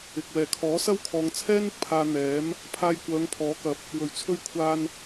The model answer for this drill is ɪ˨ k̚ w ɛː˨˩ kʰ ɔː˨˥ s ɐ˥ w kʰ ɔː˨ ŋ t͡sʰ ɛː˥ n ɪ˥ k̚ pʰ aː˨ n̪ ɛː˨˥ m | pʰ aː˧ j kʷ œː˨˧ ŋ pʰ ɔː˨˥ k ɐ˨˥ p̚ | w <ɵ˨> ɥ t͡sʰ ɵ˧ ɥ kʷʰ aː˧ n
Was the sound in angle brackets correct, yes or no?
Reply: no